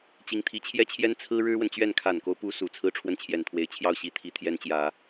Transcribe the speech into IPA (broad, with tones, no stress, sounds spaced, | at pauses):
t͡ɕ i˧˥ ŋ t̪ʰ i˧˥ t͡ɕʰ j ɛ˥ t͡ɕʰ j ɛ˥ n t͡sʰ ɹ̩˥ ɻ ɻ̩˥ w ə˨ n t͡ɕ ɥ ɛ˥˩ n kʰ a˨˩ n k o˦ ʊ̯ p u˧˥ s u˨˩ t͡sʰ ɹ̩˥ ʈ͡ʂʰ w ə˥˩ n t͡ɕʰ j ɛ˨˩ n t̪ʰ w e˧˥ ɪ̯ t͡ɕʰ j ɑ˥˩ ʊ̯ ɕ i˧˥ t̪ʰ i˧˥ t̪ʰ j ɛ˧˥ n t͡ɕ j ä˨˩˦